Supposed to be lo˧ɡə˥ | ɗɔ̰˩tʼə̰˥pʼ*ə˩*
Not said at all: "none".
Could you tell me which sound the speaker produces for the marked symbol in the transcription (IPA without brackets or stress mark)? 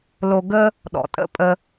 ə˧